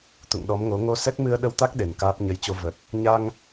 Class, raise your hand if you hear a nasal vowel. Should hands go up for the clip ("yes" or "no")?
no